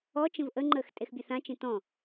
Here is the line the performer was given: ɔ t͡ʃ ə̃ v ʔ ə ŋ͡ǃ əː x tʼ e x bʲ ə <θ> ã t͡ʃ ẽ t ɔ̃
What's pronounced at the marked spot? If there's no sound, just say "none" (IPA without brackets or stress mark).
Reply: θ